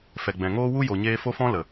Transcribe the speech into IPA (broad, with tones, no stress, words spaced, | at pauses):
fɛ˨ɡ͡bɛ̃˨ ŋoː˦wu˦ jo˨ɲeː˧ fo˦fɔ̃˦lə˨